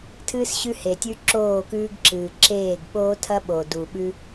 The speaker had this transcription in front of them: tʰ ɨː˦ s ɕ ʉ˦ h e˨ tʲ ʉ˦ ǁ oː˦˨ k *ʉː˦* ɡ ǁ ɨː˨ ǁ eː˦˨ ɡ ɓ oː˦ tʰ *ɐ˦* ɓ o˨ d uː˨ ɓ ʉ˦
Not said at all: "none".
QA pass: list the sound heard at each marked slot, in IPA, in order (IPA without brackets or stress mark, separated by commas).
ʉː˦, ɐ˦